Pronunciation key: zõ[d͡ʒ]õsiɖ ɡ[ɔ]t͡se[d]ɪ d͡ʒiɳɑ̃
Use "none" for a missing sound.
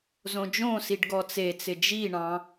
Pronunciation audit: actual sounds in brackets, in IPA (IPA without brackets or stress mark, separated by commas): d͡ʒ, ɔ, t͡s